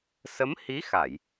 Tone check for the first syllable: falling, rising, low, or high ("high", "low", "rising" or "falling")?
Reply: rising